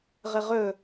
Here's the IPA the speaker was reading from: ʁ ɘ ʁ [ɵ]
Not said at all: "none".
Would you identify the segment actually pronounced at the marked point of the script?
ɵ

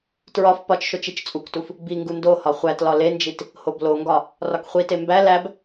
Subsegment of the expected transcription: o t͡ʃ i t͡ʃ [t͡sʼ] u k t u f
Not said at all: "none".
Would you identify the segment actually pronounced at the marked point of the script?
t͡sʼ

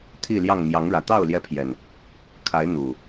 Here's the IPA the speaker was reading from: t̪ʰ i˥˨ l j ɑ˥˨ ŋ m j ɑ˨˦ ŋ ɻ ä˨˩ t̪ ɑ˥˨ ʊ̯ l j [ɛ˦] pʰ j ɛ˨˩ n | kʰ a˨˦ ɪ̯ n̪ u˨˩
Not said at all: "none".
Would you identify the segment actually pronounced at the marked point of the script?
ɛ˦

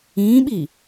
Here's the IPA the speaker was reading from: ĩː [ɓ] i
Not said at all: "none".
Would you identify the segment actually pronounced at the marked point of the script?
ɓ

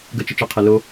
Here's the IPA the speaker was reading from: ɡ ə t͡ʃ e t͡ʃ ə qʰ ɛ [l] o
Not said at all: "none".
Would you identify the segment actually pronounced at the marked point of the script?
l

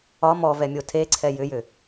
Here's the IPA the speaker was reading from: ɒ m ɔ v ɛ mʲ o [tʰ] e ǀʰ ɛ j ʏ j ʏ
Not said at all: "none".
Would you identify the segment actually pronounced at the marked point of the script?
tʰ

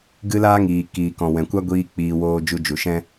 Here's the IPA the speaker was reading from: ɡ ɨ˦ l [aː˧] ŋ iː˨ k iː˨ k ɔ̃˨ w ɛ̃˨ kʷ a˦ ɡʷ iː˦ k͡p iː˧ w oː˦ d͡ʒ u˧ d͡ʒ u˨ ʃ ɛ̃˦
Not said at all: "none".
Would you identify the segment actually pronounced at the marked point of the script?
aː˦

